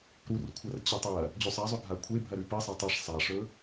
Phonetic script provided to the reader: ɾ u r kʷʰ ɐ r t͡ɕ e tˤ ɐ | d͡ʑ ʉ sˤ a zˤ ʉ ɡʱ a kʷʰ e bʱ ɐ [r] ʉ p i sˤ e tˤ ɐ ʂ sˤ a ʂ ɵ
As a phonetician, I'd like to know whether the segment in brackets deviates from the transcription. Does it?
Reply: yes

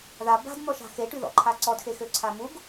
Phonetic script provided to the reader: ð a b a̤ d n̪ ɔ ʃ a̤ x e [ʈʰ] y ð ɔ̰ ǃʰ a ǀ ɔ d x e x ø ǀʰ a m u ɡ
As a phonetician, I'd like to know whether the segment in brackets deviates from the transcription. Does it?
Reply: yes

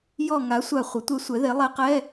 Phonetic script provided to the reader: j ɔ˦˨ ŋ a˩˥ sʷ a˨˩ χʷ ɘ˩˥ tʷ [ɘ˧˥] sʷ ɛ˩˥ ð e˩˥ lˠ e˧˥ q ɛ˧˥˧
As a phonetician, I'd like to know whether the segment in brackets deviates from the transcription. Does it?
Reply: yes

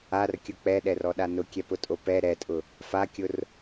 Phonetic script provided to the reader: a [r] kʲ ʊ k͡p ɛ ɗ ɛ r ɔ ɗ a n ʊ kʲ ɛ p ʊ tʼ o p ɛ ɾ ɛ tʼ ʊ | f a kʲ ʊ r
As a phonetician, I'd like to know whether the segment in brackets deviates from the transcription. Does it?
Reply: no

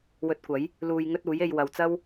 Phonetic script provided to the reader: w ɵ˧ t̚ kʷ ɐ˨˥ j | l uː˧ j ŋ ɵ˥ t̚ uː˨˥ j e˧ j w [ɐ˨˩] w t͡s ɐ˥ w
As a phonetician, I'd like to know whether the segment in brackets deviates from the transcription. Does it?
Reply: yes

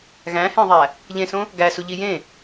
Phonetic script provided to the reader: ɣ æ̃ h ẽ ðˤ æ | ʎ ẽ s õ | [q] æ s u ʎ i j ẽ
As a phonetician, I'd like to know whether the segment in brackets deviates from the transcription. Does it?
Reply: yes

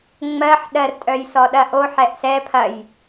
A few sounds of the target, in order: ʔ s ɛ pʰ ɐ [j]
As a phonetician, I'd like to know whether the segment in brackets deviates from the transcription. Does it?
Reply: no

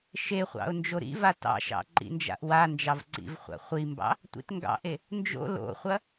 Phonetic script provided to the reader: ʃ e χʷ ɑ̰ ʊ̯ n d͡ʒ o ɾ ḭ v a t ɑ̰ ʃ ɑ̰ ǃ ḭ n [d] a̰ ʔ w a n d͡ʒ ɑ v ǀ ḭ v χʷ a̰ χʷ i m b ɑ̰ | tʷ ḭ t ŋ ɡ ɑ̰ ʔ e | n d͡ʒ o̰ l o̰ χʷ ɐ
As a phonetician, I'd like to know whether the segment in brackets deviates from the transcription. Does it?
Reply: yes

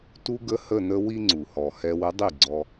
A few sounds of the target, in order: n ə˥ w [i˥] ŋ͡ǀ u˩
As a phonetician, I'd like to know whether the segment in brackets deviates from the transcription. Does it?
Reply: no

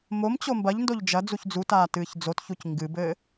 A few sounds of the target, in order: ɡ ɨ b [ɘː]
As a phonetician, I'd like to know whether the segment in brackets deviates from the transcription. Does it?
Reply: no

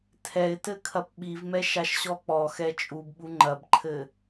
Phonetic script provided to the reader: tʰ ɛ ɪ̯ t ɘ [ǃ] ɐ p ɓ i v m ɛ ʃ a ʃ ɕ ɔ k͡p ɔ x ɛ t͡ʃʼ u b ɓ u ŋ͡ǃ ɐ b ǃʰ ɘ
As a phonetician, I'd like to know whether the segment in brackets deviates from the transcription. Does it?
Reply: yes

